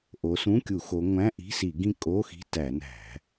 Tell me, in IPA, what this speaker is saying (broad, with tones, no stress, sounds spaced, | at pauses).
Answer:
ʔ o˨˦ s ũ˧˥˧ kʲ u˧˩˧ x o˨˦ ŋʷ æ̃˧˥˧ ʔ i̤˧˥˧ s i˧˩˧ ɡ ĩ˥˩ kʼ o˧˥˧ x i̤˧˥˧ t æ˧˩˧ n æ̤˧˩˧